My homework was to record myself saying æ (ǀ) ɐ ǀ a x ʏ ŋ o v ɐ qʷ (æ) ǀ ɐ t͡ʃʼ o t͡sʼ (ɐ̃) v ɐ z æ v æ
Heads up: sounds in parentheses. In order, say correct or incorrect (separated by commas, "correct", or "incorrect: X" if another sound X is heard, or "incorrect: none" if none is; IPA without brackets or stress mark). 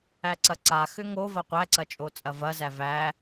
correct, correct, incorrect: ɐ